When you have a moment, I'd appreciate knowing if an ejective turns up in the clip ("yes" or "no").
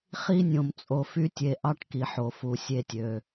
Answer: yes